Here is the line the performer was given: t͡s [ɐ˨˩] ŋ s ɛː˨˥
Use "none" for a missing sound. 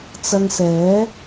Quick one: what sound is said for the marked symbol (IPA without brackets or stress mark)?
ɐ˧